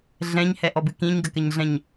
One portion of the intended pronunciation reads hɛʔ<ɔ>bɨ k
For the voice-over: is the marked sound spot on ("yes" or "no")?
yes